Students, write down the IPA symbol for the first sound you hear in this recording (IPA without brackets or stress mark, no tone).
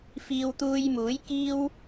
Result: f